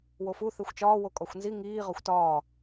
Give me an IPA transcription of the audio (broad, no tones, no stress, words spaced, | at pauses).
wofu θexʷt͡ʃɒː wokʼɒxʷnzi ŋiː ʁɒxʷtɒː